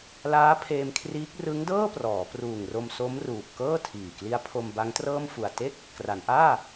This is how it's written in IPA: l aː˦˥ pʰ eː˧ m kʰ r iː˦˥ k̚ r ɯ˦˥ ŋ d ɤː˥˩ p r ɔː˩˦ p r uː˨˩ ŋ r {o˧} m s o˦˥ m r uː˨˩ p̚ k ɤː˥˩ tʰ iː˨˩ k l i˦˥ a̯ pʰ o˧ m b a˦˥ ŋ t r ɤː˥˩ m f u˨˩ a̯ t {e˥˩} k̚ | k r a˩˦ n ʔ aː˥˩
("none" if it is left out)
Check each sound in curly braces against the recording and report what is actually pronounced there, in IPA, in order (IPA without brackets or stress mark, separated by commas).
o˧, e˥˩